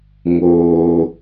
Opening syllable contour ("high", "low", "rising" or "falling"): high